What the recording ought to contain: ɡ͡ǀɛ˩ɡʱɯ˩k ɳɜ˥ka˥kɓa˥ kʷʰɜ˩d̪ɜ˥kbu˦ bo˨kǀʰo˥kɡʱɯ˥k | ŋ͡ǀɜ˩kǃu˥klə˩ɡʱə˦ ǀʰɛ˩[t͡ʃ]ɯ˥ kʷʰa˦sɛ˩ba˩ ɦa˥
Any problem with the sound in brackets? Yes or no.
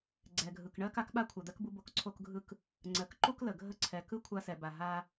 yes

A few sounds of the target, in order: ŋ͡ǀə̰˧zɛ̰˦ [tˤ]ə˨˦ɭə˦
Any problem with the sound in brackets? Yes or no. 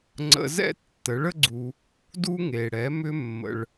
yes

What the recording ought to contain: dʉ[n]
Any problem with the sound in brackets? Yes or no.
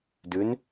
no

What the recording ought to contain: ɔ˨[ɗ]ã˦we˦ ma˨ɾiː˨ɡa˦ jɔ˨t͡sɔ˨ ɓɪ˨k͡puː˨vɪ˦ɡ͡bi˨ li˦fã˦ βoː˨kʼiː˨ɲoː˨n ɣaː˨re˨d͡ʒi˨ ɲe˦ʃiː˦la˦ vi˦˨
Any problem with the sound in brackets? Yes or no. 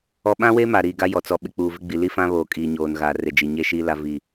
yes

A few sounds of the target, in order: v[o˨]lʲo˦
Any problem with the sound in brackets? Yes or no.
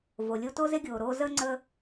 no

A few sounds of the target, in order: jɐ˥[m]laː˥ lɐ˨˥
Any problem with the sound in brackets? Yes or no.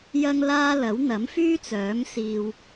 yes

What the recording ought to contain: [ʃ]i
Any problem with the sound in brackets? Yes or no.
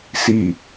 yes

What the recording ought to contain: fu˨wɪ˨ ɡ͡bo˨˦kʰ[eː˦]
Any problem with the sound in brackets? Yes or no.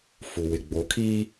yes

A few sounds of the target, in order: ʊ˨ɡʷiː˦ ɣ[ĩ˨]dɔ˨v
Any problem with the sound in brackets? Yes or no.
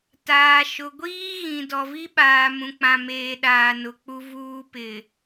no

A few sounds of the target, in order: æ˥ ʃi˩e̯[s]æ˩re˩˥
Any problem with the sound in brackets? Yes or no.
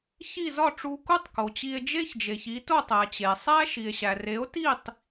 yes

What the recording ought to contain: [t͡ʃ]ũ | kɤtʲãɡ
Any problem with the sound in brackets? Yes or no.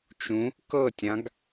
no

